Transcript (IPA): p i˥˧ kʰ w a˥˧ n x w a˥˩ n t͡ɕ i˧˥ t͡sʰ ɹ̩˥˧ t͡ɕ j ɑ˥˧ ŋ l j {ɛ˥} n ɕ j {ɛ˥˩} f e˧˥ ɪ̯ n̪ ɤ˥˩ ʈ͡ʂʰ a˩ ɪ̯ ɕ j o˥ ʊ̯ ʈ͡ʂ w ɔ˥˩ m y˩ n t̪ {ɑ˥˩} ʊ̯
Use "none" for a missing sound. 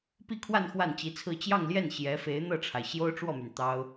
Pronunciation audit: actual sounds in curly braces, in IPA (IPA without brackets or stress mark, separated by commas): ɛ˥˩, ɛ˧˥, ɑ˥